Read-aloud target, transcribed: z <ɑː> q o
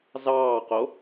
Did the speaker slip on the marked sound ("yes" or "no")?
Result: no